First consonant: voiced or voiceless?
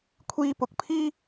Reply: voiceless